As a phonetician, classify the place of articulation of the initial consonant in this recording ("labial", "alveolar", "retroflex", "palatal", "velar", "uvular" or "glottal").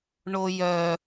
retroflex